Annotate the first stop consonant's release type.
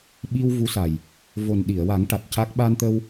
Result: implosive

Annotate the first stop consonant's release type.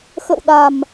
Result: implosive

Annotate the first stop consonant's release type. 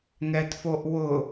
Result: plain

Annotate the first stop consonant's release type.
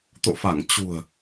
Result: plain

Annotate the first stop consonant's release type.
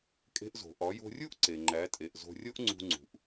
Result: ejective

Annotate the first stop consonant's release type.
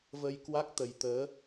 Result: plain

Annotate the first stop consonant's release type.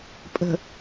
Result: ejective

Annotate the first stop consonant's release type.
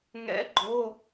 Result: click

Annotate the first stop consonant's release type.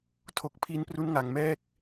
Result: aspirated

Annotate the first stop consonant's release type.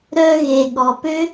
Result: implosive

